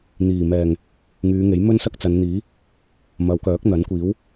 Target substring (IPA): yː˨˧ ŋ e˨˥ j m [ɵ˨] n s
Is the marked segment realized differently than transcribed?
yes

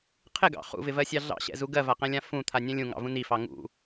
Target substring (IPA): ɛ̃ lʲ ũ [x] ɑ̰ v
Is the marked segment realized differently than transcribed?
yes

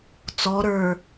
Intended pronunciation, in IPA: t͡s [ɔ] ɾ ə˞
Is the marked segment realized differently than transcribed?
no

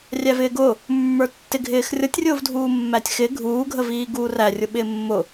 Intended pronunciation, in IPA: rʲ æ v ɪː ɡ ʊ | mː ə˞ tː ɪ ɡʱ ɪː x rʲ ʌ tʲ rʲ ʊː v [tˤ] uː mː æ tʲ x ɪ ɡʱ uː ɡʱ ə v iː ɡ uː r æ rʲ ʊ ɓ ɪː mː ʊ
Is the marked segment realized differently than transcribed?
yes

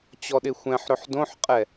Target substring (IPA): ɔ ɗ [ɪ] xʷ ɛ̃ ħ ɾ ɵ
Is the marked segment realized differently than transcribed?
no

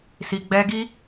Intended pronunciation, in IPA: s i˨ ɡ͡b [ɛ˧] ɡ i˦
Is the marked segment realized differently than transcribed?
no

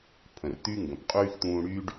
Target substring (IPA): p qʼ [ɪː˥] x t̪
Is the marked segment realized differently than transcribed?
yes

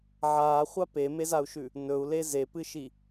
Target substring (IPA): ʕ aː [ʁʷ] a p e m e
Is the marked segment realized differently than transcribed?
yes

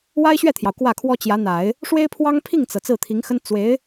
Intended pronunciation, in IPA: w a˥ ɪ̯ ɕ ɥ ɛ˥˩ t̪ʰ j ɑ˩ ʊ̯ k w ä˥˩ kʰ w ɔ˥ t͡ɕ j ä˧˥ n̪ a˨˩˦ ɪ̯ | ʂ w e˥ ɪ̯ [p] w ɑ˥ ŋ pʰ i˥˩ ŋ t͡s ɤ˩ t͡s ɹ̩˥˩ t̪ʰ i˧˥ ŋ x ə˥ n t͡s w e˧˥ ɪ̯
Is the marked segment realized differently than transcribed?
yes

